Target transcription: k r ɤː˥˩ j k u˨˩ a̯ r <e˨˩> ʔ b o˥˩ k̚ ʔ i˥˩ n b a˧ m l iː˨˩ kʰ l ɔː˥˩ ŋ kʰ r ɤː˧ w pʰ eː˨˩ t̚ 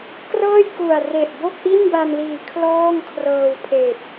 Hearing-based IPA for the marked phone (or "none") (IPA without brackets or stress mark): e˨˩